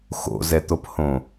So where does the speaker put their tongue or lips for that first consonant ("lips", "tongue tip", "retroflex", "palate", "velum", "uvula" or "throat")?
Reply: velum